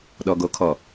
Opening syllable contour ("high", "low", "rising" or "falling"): low